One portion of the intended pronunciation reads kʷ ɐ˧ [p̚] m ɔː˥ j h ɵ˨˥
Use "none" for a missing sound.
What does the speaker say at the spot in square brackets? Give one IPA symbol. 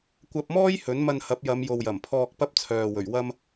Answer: p̚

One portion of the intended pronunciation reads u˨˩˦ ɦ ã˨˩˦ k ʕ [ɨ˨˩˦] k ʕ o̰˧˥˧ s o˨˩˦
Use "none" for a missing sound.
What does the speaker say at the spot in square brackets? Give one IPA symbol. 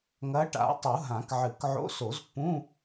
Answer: ɨ˨˩˦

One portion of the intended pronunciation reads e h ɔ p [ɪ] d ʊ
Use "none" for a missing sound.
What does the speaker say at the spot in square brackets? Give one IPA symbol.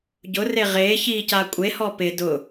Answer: ɪ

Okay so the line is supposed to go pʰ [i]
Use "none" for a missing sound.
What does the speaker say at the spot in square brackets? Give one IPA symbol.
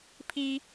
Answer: i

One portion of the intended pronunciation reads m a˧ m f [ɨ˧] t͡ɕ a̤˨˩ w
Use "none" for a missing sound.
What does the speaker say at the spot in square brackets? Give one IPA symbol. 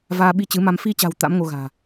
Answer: i˧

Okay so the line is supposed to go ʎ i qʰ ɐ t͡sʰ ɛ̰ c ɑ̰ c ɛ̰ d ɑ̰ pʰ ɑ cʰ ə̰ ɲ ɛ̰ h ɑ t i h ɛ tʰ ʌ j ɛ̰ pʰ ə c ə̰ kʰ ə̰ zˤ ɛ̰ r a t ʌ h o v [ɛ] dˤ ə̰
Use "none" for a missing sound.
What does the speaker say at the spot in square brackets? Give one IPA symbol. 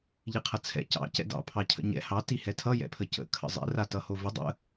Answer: ə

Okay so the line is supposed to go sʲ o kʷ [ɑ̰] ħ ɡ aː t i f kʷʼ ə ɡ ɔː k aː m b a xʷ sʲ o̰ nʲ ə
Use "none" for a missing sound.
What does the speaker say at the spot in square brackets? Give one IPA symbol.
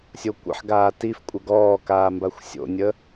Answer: ə̰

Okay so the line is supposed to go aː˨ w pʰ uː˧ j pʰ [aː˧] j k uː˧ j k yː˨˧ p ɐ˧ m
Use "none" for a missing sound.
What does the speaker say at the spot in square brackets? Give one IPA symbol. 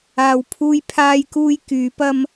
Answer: aː˧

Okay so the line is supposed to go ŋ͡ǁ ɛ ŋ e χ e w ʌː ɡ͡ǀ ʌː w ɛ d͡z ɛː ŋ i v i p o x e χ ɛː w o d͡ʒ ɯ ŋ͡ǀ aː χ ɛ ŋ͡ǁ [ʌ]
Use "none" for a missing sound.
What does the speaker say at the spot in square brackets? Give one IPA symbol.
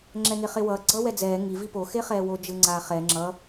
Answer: ʌ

